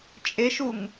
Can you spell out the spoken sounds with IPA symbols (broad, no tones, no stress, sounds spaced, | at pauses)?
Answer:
t͡ʃʼ e ʃ u ŋ